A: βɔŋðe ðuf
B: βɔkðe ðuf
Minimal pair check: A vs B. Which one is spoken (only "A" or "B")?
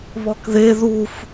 B